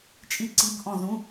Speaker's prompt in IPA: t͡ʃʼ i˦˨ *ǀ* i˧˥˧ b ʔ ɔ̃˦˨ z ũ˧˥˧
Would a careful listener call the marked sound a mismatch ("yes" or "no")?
no